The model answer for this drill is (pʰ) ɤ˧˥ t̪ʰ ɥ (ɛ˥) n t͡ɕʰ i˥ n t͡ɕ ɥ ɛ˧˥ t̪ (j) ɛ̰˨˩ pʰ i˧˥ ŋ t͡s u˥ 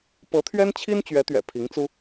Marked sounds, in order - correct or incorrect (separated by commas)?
incorrect, correct, incorrect